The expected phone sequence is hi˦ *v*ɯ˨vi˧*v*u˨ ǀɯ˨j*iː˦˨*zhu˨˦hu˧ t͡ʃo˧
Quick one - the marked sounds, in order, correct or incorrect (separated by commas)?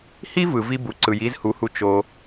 correct, incorrect, incorrect